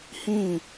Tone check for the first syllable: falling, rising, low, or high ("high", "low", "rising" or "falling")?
falling